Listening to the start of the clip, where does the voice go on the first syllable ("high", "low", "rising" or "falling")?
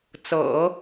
low